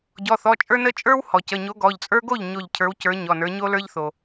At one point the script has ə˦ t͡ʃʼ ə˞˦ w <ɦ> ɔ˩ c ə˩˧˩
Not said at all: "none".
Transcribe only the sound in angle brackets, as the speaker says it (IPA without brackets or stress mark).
h